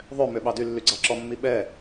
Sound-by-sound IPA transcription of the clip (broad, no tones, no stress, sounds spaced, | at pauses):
ðˤ ø m ø ɓ ɑ d y lː y ɡ͡ǀ ɑ ǁ ɔ mː i ɓ ɛ